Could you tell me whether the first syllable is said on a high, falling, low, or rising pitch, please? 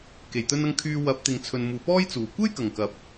low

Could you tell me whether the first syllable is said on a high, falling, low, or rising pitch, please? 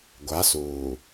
rising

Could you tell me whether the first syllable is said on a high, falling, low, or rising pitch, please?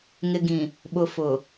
low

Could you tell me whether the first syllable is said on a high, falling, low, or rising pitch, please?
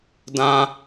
high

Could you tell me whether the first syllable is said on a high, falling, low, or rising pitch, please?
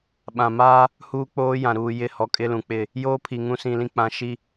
low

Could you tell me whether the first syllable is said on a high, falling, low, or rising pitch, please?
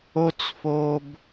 high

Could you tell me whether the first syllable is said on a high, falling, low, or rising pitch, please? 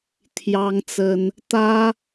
high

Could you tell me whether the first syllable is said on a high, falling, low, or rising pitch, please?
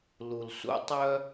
low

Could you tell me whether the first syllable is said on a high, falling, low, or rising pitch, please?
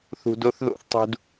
low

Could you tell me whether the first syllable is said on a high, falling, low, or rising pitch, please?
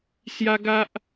high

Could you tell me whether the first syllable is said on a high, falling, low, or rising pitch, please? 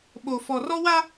low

